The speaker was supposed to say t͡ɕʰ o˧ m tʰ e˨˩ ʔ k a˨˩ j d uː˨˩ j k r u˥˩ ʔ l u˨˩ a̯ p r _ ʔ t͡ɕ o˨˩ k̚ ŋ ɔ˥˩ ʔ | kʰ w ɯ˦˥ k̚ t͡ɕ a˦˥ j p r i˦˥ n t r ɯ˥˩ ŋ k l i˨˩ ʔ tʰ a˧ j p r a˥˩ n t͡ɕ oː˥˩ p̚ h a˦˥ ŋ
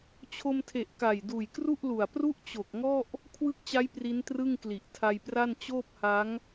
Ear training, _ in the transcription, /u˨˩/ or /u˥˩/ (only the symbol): u˥˩